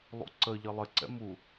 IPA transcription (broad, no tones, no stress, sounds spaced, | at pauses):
lˠ ṵ ǀ ə ʎ ə lˠ ɪ ǀ ɛ̰ m u